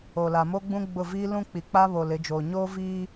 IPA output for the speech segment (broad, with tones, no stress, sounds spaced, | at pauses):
o˨ l a˨ m o˦ ɡ͡b ũ˦ ɡ͡b ʊ˦˨ v iː˦ l ũ˦ k͡p i˨ k͡p a˦ β o˨ l ɪ˨˦ d͡ʒ oː˨ ɲ oː˦ v iː˦